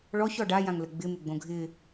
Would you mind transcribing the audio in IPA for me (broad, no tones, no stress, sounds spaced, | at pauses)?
ɭ ɔ ç ɔ ɖ a j ã ŋ l ə ɡ͡b ɪ m ɪ ɡ͡b õ ɡʱ ɪ